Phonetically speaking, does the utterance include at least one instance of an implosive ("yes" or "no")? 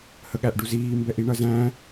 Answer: yes